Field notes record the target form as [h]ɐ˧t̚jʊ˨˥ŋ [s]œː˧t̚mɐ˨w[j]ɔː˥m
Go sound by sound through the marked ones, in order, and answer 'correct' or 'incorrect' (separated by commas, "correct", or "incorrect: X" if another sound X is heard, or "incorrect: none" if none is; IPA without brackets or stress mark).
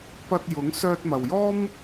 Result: incorrect: p, correct, correct